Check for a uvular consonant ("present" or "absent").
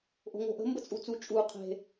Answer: present